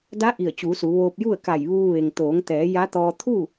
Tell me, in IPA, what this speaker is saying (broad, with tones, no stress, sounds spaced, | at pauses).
d a˧˥ ʔ i˧˩ ə̯ t͡ɕ uː˩˧ s u˩˧ ʋ oː˧ p̚ j u˥˨ ə̯ k a˧˩ j ʋ uː˧ ʋ e˩ ŋ t̪ oː˩˧ ŋ t̪ ɛː˩˧ j a˧˥ t̪ ɔː˧ t̪ʰ u˥˨